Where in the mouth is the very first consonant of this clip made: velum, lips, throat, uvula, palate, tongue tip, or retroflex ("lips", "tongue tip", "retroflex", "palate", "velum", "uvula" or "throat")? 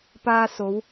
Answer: lips